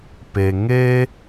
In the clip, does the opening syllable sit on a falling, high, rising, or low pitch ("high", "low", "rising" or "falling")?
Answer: low